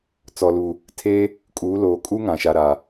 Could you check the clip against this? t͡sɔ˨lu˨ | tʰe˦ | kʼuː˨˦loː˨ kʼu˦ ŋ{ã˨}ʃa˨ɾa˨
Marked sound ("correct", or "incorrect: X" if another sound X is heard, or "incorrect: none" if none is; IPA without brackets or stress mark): correct